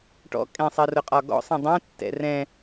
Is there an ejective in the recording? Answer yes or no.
yes